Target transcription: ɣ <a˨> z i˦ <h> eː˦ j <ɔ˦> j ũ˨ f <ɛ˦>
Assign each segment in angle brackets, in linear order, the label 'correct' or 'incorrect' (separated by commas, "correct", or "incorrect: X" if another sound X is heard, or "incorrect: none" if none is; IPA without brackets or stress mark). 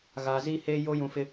correct, correct, incorrect: o˦, incorrect: ɪ˦